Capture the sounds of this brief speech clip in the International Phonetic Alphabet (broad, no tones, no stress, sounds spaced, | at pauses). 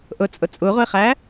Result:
ʔ ʊ t͡sʼ ʊ t͡sʼ u ʁʷ i χ æ